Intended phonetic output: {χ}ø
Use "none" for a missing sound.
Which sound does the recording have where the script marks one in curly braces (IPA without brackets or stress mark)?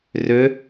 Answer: r